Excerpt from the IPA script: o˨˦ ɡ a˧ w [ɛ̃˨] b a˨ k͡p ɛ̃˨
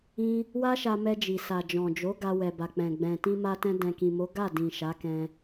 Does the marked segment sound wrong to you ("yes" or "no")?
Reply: yes